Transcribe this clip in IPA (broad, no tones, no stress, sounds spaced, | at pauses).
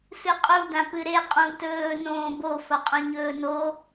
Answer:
s ɨ qʼ u d ã p ɨ ɾ e qʼ ũ t ɵː n õː b o f ɐ qʼ õ ɲ ɵː n o